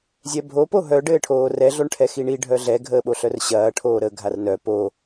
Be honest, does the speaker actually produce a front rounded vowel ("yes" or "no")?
yes